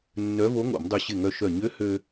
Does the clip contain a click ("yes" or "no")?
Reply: no